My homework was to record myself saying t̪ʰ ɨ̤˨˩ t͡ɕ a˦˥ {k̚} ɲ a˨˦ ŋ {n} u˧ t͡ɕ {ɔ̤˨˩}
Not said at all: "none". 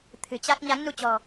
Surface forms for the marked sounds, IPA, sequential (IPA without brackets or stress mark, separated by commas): k̚, n, ɔ̤˨˩